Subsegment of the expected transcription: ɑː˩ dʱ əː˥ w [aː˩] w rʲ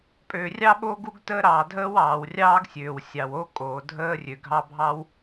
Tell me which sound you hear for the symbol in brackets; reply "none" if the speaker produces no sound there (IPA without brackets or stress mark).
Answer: ɑː˩